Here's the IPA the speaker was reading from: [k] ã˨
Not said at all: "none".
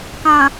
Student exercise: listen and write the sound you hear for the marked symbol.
k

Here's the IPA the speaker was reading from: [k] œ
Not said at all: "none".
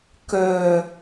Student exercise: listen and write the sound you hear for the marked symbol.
k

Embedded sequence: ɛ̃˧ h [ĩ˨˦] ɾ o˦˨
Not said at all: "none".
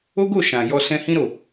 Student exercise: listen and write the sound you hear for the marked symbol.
ĩ˦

